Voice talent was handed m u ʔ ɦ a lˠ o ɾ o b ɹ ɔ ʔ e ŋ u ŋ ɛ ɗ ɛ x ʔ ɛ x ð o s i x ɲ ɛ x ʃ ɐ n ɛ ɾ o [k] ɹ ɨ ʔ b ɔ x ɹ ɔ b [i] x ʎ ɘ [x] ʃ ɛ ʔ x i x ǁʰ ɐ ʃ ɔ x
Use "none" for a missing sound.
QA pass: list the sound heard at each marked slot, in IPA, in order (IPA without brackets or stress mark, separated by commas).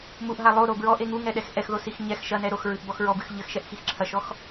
x, ɨ, x